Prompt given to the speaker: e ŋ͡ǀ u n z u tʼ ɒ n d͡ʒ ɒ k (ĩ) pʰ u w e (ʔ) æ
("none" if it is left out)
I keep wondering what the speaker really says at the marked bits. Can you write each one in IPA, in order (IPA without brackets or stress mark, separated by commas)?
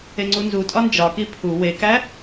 i, k